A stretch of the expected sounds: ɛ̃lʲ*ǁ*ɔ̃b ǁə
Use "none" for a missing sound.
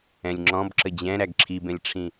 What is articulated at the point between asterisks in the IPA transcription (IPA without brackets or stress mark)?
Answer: ŋ͡ǁ